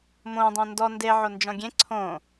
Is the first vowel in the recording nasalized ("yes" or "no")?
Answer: yes